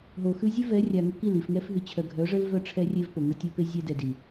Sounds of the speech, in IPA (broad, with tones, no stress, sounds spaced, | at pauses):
ɦ o˨ x ʉ˦ zʲ ʉ˦ v ɛ˨˦ rʲ a˨ ŋ ə˦ k i˦˨ l i˨ f ŋ ɛ˦ f ɦ ʉ˨ t͡ɕʰ œ˨ ɡʱ œ˨˦ ʐ ə˦ l v œ˦ ʈ͡ʂʰ ɛ˦ rʲ e˦ v p o˨ ŋ ə˦ tʲ o˦ p e˦ zʲ ɛ˦ d ɛ˨ d i˨